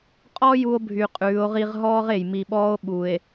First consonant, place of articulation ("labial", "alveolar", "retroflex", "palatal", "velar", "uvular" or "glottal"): uvular